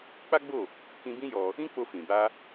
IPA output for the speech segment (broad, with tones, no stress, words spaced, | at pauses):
k͡pa˦ɡ͡bo˦˨ | kĩ˧bĩ˦ jɔ˧ | ĩ˦k͡po˧ fĩ˨ ba˧